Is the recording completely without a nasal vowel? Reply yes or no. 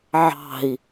yes